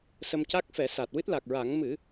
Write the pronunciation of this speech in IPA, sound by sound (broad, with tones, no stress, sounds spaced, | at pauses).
s ə˧ m c a˦˥ k̚ f ɛ˨˩˦ s a˨˩ t̚ w ɨ˦˥ t̚ l a˨˩ k̚ ɹ a˨˩˦ ŋ m ɨ˨˩˦